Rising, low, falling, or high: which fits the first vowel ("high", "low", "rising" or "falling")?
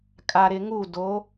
low